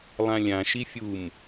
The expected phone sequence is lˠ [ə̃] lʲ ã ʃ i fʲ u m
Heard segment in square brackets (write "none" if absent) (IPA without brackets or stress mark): ã